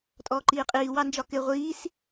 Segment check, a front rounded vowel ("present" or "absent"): absent